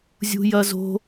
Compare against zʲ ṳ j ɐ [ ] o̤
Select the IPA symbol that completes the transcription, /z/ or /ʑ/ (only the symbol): z